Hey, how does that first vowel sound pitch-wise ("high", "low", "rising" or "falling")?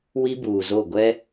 high